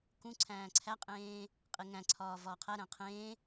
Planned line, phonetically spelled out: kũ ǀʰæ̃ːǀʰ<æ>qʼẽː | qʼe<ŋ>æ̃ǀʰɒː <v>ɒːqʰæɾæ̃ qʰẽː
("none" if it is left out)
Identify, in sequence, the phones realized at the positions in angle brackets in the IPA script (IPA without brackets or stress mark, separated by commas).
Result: æ, ŋ, v